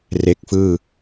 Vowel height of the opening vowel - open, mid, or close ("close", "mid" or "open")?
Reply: mid